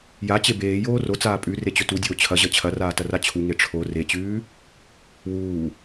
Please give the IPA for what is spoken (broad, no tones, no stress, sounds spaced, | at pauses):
j a t͡ɕ e b eː j oː r o t͡s aː pʼ ʉ r e t͡ɕ ɵ t u dʲ oː t͡ɕʰ ɐ ʑ ɐ t͡ɕʰ ɐ r aː t ɐ r a t͡ɕʰ u ŋ e ʈ͡ʂʰ o r e t͡ɕ ʉː | w uː